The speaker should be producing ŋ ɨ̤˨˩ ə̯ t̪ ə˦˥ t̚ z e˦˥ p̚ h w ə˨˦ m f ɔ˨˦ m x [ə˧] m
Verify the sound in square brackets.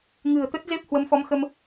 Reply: correct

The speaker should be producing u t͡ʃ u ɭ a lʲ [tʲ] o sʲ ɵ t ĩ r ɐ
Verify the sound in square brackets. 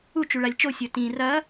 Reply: incorrect: t͡ʃ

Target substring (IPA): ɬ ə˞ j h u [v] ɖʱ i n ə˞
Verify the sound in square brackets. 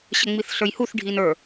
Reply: incorrect: θ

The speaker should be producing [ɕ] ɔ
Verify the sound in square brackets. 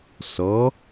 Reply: incorrect: s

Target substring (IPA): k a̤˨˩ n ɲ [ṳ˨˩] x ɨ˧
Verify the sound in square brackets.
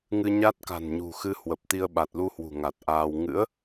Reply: correct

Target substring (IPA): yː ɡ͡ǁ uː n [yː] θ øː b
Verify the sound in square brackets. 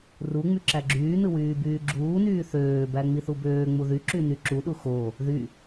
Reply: correct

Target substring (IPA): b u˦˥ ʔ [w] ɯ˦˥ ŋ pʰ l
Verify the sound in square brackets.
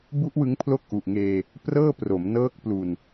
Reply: correct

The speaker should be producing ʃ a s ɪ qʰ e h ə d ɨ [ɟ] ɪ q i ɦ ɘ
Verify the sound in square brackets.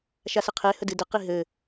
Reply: incorrect: d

